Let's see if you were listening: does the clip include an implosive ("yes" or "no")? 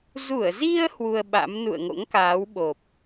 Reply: yes